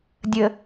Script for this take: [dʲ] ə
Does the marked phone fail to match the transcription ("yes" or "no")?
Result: no